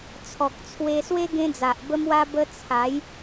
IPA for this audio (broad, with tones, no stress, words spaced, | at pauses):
t͡sʰɔ˨k̚t͡sʰwe˧swe˦ ɡẽ˦d͡za˨ʔbə˦mwa˦ bə˧ t͡sʰa˨˦j